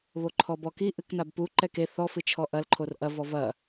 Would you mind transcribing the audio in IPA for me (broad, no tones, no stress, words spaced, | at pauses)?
βoǃʰɔbɔki ʔɨknabpu ǃɛke θɔ fɨt͡ʃʰɔʔɐl ǃʰorʔɐ vɔvɐ